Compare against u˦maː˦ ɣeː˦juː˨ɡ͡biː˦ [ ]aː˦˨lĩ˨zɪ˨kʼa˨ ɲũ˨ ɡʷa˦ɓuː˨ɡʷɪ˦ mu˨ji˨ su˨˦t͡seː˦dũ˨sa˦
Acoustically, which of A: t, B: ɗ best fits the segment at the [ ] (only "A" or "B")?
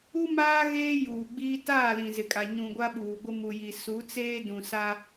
A